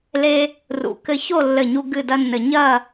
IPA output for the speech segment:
l e˥ | r ṵ˧˩ k ɘ˥ ç o˥˧ lː ɘ˧˩ ɲ u˧ ɡ ɨ˥˧ d ɐ˥ nː ɘ˧ ɲ ɐ˥˧

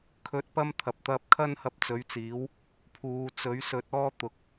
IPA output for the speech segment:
kʰ ɵ˧ t̚ p ɐ˥ m t̪ʰ ɐ˨ p̚ t̪ ɐ˧ p̚ kʰ ɐ˥ n h ɐ˧ p̚ t͡s ɵ˨˥ ɥ t͡s iː˨˥ w | pʰ uː˨˧ t͡s ɵ˨˥ ɥ s ɵ˨˥ t̚ ɔː˥ t̪ ʊ˨˥ k̚

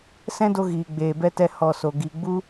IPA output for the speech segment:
s ɛ̃˦ d o˧ ɣ iː˨ ɡ͡b eː˨ b ɛ˦ t ɛ˦ h ɔ˨ s o˨ ɡ i˨ ɡ͡b u˦

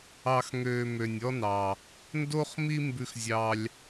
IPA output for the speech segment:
ɑ˧ x ŋ øː˧ m ø˧ nʲ ɔ˥ n ɑ˧ | n d o˥ χ m i˥ m b ʉ˥ x zʲ ɑ˥ lʲ

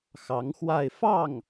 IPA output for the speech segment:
x ɑ˧˥ ŋ x w a˥˧ ɪ̯ f ɑ˥˩ ŋ

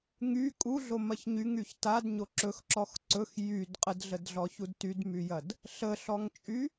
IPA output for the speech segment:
ŋ y kʼ u ɮ o m ɐ ç ɲ y ŋ y ç t a d ɲ o ǁ ɵ x ǁ ɔ x ǀ ɵ x j y d qʼ ə d ɮ ə d ɮ ɔ ç u d t y d m y j ɐ d | ɬ ə ɬ ɔ ŋ t͡ʃʼ y

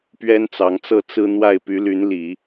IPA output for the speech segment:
p ɥ ɛ˥ n t͡s ɑ˧˥ ŋ t͡s ɤ˥˩ t͡s ɹ̩˥ n̪ w a˥˩ ɪ̯ p y˧˥ l y˧˥ n l i˨˩˦

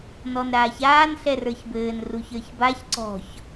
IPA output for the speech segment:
n ɔ n ɾ aː ç aː n ɬ ɛ r ə˞ ç b ɘː n r u ç ə˞ ç b a ç ǀ ɔ̤ ç

